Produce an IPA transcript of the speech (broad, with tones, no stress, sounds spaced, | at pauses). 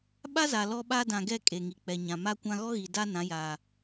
ɓ a˦ z a˨ l ɔ˦ ɓ a˦ d ã˨ ɡ ɛ˦˨ kʼ e˨ ŋ i˨ k͡p ɛ˨ ɲ ã˨ m a˦ kʷ ã˦ ɣ ɔ˦ ɣ i˨ d a˦ n ã˨˦ j aː˨